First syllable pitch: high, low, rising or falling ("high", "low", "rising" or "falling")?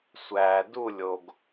low